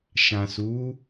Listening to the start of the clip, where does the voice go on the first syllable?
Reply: low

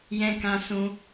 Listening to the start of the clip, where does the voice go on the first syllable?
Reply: high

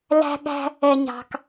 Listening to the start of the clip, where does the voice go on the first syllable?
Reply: high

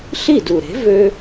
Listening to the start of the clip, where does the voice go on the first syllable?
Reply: falling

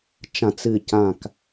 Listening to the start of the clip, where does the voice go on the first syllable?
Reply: low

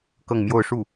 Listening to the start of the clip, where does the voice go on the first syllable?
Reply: falling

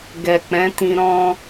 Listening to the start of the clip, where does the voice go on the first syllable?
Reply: low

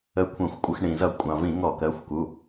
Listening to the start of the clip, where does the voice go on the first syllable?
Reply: rising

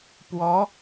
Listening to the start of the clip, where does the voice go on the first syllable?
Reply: rising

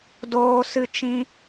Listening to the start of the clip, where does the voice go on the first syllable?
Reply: high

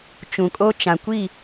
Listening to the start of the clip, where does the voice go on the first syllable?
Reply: low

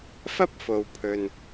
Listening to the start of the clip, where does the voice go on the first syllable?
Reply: high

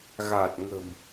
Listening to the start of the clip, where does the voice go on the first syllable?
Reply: low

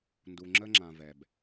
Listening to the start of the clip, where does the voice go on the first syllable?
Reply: low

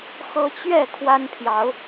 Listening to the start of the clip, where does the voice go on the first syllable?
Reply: high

